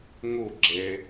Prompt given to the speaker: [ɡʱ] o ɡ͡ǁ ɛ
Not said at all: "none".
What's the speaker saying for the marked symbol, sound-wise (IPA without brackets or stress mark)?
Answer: ŋ